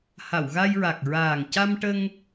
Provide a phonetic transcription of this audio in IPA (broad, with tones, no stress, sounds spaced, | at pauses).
h a˨˩˨ w ɣ a˧ j ɹ a˨˩ k̚ ɹ aː˨˩ ŋ c a˧ m ʈ ə˧ ŋ